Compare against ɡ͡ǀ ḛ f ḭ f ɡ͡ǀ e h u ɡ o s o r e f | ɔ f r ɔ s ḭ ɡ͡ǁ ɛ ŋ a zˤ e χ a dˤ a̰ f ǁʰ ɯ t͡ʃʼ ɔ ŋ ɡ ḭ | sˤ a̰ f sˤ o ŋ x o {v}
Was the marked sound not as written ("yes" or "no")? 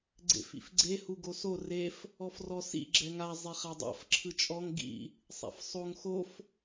yes